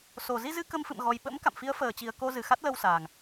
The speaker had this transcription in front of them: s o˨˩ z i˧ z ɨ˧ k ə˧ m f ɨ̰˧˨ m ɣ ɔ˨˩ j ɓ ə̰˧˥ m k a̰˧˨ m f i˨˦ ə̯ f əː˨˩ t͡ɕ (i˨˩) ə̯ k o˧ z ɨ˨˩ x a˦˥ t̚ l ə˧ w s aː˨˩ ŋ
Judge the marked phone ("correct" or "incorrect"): correct